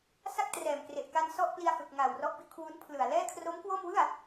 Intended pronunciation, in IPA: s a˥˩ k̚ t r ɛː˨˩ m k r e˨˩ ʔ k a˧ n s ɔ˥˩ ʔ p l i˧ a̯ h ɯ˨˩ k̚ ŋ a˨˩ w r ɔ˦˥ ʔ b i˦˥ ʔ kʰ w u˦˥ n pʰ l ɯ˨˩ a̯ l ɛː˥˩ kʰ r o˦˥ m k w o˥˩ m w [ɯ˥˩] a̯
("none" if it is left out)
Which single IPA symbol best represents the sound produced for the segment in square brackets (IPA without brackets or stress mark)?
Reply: ɯ˥˩